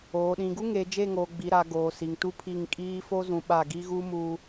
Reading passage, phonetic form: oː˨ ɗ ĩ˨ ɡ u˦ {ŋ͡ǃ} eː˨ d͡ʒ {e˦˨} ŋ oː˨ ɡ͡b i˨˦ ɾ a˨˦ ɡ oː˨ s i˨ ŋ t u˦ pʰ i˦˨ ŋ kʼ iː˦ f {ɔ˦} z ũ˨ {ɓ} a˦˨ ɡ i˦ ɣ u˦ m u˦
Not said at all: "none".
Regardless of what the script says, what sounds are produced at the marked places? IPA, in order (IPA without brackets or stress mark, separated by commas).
ŋ, e˦˨, o˦, ɓ